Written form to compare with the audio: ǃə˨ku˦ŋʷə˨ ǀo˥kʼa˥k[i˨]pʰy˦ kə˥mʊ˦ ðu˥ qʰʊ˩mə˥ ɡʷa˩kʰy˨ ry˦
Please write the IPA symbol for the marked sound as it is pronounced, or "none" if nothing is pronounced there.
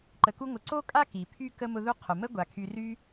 i˩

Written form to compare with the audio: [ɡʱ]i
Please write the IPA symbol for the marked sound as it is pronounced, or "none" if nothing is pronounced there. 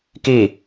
k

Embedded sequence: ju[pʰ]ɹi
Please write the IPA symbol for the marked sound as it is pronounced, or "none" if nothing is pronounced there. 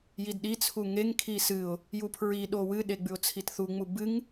pʰ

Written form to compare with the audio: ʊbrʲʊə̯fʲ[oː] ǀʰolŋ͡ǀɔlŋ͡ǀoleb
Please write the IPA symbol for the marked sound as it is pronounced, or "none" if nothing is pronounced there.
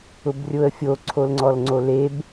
o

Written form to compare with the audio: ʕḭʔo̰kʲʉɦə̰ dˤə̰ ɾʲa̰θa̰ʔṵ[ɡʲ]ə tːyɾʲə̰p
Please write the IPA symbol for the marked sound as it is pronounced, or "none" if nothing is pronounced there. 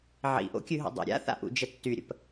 d͡ʒ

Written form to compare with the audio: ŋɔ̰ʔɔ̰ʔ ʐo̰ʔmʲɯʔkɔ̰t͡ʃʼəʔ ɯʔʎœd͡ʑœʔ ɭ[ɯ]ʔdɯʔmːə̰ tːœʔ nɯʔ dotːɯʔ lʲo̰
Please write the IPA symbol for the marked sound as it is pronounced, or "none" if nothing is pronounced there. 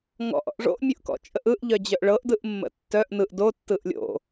ɤ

